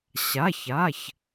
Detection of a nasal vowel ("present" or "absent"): absent